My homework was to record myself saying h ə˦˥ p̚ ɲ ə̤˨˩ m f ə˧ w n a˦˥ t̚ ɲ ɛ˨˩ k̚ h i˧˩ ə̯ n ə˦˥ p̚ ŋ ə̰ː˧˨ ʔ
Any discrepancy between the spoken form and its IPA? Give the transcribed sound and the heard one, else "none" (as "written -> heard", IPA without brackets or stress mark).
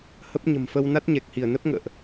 none